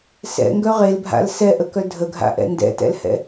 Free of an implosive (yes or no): yes